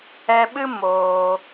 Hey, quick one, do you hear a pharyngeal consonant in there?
no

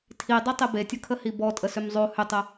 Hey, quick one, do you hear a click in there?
no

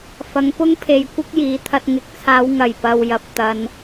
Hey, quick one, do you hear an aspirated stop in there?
yes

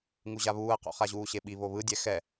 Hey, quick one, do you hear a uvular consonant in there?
yes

